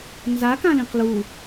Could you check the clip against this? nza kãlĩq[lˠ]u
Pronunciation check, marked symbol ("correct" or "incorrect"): incorrect